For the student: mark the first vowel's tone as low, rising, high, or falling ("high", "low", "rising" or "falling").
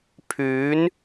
rising